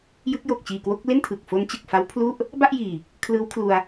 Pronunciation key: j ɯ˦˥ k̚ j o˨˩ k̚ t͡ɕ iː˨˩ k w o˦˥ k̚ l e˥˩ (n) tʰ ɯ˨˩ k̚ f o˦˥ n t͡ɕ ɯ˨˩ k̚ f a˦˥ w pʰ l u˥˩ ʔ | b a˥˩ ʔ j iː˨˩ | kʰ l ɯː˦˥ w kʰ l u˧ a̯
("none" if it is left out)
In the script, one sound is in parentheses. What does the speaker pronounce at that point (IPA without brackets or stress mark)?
n